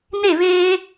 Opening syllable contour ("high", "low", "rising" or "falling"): falling